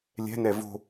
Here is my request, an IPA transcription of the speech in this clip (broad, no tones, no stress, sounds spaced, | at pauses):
lʲ ɛ̤ n ɛ v o̤